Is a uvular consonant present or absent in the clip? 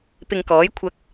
absent